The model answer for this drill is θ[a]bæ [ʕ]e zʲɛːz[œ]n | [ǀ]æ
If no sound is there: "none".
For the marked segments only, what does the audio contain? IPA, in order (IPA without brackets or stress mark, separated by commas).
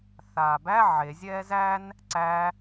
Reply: aː, ʕ, æ, ǀ